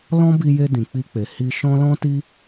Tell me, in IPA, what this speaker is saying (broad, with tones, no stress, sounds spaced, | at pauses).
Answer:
l ɔ̃˦ b i˧ j e˧ d ĩ˨ k͡p i˧ k͡p e˨ h i˧ ʃ ɔ̃˦ l ɔ̃˦ t i˦